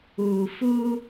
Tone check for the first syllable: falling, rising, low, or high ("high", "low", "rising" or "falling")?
low